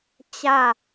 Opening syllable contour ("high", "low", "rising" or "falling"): falling